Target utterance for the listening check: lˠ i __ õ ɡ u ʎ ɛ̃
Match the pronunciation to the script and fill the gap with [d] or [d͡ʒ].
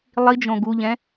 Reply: d͡ʒ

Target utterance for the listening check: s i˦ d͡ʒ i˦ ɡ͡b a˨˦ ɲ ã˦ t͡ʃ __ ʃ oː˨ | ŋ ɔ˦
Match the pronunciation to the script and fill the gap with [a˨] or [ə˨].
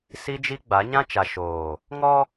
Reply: a˨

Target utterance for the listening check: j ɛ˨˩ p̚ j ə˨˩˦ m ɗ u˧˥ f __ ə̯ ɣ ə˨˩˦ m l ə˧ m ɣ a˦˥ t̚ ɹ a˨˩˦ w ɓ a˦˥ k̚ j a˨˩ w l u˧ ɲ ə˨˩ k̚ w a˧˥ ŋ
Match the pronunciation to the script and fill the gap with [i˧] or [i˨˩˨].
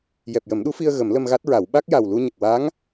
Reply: i˧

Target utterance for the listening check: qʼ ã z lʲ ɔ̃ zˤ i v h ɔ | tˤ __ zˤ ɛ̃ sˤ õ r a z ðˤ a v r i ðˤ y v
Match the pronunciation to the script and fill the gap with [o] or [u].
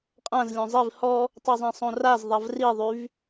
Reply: o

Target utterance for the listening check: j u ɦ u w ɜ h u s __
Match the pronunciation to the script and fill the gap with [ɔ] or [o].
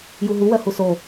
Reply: o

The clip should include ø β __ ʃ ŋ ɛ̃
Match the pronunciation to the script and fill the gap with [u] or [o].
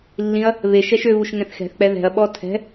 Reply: u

